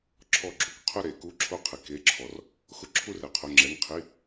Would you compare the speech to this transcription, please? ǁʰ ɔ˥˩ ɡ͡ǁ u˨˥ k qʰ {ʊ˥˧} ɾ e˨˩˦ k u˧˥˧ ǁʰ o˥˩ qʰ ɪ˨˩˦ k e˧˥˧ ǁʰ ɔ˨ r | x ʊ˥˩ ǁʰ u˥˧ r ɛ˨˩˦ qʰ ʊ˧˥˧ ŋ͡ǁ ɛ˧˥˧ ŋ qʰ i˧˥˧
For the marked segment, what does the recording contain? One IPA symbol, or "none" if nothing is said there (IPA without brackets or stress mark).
ʊ˥˧